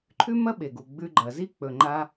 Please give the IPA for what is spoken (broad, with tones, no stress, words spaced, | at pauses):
ǃʰʉ˥ mɐ˥ɓe˩ɡu˩ ɡ͡bʉ˧ɡ͡ǃɐ˩zi˥ k͡pɵ˩ ŋ͡ǃa˧